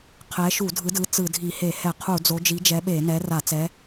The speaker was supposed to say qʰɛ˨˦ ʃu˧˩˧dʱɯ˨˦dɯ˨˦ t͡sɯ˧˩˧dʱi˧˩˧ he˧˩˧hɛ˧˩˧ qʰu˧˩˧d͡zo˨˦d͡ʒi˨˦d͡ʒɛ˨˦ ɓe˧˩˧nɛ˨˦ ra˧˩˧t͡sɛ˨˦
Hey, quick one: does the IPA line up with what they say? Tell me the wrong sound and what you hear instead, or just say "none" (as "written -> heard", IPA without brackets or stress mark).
none